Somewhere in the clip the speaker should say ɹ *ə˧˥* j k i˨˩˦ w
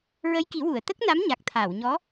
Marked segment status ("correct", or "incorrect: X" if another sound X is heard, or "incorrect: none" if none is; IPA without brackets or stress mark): correct